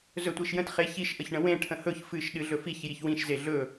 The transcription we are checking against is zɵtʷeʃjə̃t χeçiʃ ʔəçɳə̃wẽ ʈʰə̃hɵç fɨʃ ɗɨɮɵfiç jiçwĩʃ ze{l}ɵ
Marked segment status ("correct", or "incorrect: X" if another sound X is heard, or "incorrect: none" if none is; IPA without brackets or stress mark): incorrect: ɮ